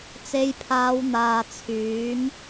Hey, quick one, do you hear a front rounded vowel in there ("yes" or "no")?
yes